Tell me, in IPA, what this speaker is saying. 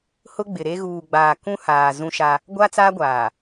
h ʊ˦ ɡ͡b ɪ˨ ɾ e˦ ɣ uː˨ ɡ͡b aː˨ k ũ˦ h aː˨ z ũ˦ ʃ a˦ | ɡʷ a˦ t͡s aː˦ ɡʷ aː˨

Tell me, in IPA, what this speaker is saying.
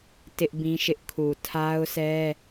t ɪ˦ ʔ b ĩ˦ ʃ ɪ˦ ʔ kʰ u˨ tʰ a˦ ʊ̯ sʰ ɛ˦

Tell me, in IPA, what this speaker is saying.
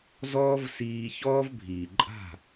z ɔː˦ v s iː˧ ç ɔː˦ v bʱ iː˨ ǃʼ a̤˦˨

